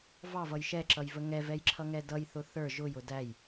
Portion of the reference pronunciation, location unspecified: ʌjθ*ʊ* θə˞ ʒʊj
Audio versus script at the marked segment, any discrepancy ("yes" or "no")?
no